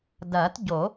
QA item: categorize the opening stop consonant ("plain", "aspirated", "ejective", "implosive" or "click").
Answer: plain